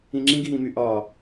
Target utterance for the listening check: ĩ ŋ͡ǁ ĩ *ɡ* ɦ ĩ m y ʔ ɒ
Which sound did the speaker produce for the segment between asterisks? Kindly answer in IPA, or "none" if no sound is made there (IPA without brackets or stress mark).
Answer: ɡ